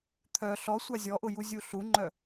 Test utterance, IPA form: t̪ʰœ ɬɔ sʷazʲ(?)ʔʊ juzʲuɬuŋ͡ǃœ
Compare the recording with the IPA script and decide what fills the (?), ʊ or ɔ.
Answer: ɔ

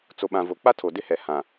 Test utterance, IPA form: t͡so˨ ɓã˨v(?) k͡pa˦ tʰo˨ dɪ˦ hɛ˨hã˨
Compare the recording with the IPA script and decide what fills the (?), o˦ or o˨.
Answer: o˨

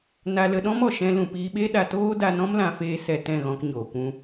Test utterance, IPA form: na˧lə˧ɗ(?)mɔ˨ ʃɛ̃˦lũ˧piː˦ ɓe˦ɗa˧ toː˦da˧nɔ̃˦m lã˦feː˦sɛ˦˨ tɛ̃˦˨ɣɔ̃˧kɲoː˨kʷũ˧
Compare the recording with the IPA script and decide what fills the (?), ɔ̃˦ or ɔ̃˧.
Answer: ɔ̃˦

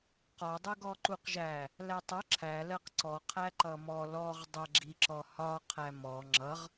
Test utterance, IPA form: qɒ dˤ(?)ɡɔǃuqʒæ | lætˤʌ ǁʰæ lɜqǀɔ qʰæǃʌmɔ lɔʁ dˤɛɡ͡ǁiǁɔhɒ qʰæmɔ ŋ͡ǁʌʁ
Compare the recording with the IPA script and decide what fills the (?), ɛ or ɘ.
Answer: ɛ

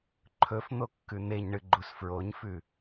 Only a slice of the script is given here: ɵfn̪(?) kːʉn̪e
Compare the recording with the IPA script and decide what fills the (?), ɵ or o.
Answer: o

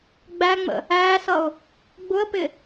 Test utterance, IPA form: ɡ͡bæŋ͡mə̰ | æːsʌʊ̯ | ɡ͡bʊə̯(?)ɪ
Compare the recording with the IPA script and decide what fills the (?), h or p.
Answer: p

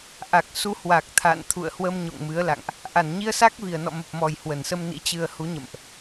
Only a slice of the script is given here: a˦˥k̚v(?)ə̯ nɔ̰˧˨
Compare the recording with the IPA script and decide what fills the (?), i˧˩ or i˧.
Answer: i˧˩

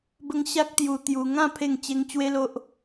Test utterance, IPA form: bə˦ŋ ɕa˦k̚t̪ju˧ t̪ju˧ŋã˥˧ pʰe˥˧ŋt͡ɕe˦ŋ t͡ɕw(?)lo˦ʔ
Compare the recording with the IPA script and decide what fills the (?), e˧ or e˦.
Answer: e˦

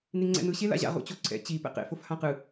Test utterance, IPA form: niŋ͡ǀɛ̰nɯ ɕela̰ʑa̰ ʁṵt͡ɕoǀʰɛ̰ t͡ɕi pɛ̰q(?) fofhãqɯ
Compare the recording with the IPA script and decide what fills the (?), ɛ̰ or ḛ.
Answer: ḛ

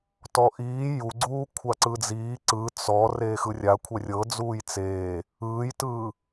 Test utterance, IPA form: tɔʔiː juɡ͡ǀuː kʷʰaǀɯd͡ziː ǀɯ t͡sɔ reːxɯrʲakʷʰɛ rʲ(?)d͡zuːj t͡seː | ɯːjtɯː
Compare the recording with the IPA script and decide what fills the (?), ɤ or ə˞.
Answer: ɤ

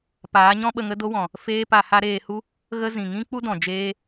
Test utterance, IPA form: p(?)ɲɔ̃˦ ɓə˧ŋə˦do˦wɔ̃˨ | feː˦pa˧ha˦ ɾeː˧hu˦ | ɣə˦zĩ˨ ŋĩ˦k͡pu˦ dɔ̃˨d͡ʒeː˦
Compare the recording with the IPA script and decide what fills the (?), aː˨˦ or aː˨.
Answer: aː˨˦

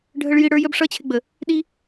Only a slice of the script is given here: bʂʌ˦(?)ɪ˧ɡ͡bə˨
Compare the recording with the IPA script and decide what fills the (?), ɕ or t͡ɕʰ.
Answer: t͡ɕʰ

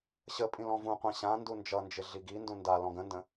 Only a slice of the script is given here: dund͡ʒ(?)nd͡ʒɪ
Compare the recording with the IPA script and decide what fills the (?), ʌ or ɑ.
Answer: ʌ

